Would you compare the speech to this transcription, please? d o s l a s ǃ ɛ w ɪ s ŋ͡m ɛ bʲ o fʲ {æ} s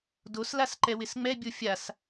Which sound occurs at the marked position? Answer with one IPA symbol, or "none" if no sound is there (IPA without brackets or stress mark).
a